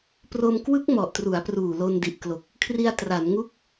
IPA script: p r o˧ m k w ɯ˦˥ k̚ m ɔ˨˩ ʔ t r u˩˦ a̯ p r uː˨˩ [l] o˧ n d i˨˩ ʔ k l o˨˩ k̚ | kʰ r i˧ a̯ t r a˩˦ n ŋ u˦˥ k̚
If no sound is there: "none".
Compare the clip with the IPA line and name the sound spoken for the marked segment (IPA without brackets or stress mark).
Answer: l